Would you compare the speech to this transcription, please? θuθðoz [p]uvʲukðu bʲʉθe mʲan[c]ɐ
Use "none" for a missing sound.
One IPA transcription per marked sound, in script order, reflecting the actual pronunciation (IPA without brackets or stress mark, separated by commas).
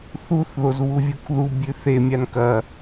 β, k